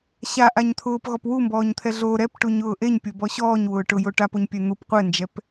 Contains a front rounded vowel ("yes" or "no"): no